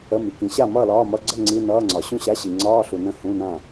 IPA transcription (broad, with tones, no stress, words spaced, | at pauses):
ə˧˥˧mi˨kĩ˨˦ ɕa˥˨mʌː˥˨lɒː˧˥˧mʌ˧˥˧ ɡ͡ǀə˥˨ ŋ͡ǀi˧˥˧nʌː˧˥˧ŋ͡ǀɒ˨ ɕũ˥˨ɕa˧˥˧ ɕi˨ŋ͡ǀɒː˧˥˧ɬu˨nə̃˧˥˧ hũ˧˥˧nã˥˨